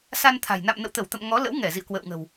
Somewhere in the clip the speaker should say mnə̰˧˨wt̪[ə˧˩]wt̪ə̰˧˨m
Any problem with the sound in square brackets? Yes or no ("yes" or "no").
no